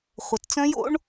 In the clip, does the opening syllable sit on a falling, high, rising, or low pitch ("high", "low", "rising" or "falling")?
low